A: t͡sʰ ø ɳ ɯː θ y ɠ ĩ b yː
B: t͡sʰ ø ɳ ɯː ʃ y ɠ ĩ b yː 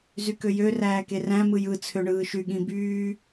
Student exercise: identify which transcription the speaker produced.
B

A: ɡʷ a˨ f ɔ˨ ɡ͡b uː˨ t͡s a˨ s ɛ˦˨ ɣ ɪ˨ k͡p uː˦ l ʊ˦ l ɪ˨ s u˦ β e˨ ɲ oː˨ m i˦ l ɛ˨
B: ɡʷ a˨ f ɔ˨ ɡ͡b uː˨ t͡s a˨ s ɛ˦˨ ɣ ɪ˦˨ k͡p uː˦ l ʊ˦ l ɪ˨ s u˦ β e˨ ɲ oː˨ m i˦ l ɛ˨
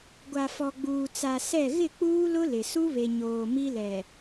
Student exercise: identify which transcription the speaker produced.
B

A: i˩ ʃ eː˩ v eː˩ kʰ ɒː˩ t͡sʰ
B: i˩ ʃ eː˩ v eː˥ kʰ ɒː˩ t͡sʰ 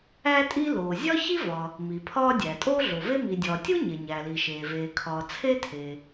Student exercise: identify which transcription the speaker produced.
A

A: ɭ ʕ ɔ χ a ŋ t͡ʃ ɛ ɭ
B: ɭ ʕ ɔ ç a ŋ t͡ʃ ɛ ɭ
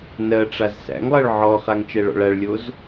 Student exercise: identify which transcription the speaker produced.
A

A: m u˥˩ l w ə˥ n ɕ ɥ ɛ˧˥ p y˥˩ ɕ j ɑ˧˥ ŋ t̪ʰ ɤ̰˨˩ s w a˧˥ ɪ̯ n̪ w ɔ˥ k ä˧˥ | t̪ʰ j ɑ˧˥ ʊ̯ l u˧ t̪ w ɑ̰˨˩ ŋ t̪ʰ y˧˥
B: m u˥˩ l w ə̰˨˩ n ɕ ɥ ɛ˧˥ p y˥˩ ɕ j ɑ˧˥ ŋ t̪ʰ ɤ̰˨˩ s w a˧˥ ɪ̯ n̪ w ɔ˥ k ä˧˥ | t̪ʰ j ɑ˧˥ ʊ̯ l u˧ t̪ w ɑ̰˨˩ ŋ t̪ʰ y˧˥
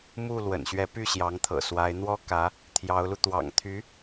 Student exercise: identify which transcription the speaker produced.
B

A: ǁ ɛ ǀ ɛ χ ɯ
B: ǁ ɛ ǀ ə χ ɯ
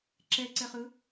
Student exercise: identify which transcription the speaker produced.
A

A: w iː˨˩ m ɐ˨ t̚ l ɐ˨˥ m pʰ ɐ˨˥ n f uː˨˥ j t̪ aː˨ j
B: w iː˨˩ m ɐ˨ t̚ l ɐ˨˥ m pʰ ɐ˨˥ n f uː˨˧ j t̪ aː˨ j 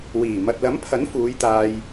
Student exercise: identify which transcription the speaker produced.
B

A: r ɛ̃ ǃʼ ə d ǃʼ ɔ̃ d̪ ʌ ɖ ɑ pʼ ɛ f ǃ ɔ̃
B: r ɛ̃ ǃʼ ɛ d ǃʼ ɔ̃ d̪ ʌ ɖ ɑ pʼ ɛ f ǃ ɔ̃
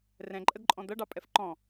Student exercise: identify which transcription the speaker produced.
A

